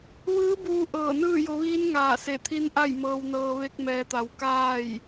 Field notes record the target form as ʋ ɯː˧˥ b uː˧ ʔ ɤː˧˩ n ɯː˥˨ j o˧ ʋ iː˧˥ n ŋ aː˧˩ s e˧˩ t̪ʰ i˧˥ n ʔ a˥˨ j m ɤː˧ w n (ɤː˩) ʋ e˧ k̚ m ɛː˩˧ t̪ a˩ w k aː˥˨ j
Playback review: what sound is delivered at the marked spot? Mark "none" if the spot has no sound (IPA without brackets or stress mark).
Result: ɤː˧